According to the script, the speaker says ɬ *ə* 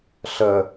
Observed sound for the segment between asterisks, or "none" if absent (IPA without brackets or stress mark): ə